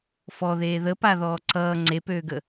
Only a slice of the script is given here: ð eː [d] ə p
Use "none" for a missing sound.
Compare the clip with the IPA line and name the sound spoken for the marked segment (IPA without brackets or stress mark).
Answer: ð